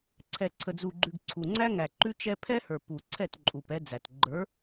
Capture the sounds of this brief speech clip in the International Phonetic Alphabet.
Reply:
ǀʰ ɛ˨ ǀʰ ə˨ d͡z u˨ ɡ͡ǃ ʉ˨ ɡ ǀʰ u˨ ŋ͡ǀ æ˦ ŋ æ˨ ǃ ʉ˦ t͡ʃ ɛ˦ pʰ ɛ˦ h ə˞˨ p u˨ ǀʰ ɛ˦˨ t ǃʼ u˨ p ɛ˦ d͡z æ˨ t ɡ͡ǃ ə˞˨˦

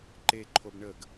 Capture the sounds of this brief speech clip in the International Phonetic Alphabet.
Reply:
ǃ e ǃʰ o b ɳ ə ɡ

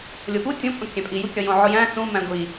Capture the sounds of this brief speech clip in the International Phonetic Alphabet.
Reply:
lʲ o p u tʲ õ pʼ õ kʲ æ̃ pʼ i j u kʲ ɒ j õ ʕ o j æ̃ s ũ m æ̃ ɡʷ i

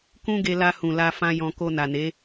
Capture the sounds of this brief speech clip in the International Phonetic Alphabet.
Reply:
k ũ˦ ɡ e˧ l a˧ h ũ˨ l a˧ f ã˧ j ɔ̃˧ k o˧ n a˨ n e˨˦

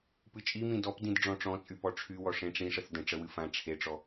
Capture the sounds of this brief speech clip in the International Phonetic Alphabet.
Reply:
p ɨ t͡ʃʼ i m ĩ d ɔ p d ĩ d ɖ͡ʐ ɔ̃ ʈ͡ʂ ɔ̃ t͡sʼ y p ɔ ʈ͡ʂʰ y w ɔ ʂ ẽ ʈ͡ʂ ĩ ʂ ə θ d ə̃ ʈ͡ʂ ə w ɨ f ã ʈ͡ʂʰ e ʈ͡ʂ ɔ

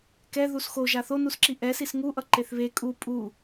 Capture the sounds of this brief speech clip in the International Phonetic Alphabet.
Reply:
k ɛ ð u s x o ʒ a θ o n u s ǁ i ʔ ɛ s i s ŋ u ʔ ʌ ǃ e θ β e kʼ u pʼ u

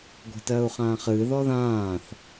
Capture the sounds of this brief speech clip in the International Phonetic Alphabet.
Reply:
ɡʷ ɛ̤ t ɜː u̯ χ ãː χ ɨː ð ɔ ð ãː θ

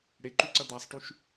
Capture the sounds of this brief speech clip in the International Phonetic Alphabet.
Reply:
ɽ e ǃ ʉ ǀ ɐ d̪ a sˤ ʈ y ʃ

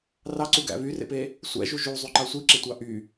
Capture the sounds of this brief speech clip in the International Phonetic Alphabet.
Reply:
r ɑ ǀ u ɡ æ̰ β y r ḛ p e | sʷ æ̰ ʒ u ʒ u zˤ y ǃ ɑ sʷ i ǁ e tʷ ɑ ʔ y

